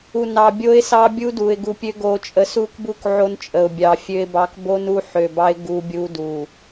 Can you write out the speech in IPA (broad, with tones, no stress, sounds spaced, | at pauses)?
u˨ n ɑ˨ bʲ o˦ ɪ̯ s ɑ˦ bʲ u˦ d u˨ ɪ̯ ɡ u˨ pʲ ø˦ ɡ o˨ t͡ʃʼ ə˨ s u˦ k b u˦ k ʕ o˦ n t͡ʃʼ ə˨ ʊ̯ bʲ ɑ˨ fʲ ø˦ ɪ̯ b ɑ˦ k b o˦ n u˦ ħ ø˨ b ɑ˦ ɪ̯ ɡ u˦ bʲ u˦ d u˨